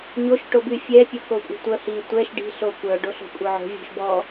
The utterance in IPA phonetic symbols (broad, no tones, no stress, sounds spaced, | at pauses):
ɲ o ʃ ʈ o b y fʲ ɛ pʲ ɔ k o kʷʼ i̤ tʷ œ h i tʷ ɛ ʃ ɖ i̤ ɬ o kʷ œ ɖ o ɬ o̤ kʷʼ œ ʕ o̤ vʲ o̤ ʃ b ɔ